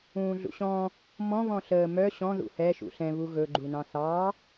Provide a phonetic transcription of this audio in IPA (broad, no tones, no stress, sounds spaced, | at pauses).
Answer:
ũː ɮ ṵ ɕ ɔ̃ | m ɔ̃ β ɔ̃ ɬ əː m œ ɕ ɔ̃ ð ṵ h ɛ ʃ ṵ ɬ ɛ̃ β u ɣ ɵ ɡ͡ǃ u n ɑ̃ θ ɑ